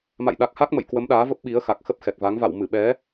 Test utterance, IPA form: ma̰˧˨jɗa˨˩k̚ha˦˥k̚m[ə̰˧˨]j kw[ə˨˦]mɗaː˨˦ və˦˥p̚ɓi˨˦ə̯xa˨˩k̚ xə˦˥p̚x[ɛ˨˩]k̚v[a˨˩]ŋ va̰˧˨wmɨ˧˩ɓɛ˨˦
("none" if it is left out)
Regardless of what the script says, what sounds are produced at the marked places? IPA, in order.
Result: ə̰˧˨, ə˨˦, ɛ˨˩, a˨˦

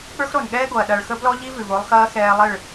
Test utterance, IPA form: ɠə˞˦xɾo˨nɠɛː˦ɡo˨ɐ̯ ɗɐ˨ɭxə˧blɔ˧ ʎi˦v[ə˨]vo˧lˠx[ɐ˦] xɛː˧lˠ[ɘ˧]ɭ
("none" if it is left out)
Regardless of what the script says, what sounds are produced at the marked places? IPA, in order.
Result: ʉ˨, ɐː˦, ɘ˦˨

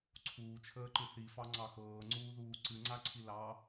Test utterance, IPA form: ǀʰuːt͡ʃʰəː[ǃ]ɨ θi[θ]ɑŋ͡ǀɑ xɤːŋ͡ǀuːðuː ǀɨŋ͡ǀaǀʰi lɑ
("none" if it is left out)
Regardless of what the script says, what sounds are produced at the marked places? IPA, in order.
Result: ǃ, f

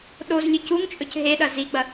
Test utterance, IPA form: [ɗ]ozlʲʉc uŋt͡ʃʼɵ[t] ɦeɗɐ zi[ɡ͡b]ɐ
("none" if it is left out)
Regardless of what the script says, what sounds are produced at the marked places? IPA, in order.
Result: ɗ, c, ɡ͡b

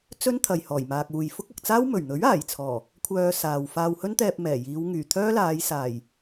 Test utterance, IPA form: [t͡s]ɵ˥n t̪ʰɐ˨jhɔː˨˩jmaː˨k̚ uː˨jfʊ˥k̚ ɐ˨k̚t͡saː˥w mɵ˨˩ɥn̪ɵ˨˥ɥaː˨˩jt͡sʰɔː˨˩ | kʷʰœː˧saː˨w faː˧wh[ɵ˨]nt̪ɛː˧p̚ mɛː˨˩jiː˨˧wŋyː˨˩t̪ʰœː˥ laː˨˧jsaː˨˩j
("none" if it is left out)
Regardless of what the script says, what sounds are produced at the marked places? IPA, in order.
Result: t͡s, ɵ˥

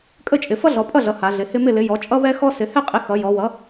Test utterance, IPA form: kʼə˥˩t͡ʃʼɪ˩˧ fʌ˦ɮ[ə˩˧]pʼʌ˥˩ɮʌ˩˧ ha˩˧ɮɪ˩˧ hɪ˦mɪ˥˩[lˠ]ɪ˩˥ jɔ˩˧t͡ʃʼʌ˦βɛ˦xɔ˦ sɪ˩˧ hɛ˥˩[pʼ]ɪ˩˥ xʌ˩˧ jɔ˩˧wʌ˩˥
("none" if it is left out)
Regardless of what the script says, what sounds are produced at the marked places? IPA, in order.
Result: ɔ˩˧, l, qʼ

